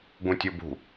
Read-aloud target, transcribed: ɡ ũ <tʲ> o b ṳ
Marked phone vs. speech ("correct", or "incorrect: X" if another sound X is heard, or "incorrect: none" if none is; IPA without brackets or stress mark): correct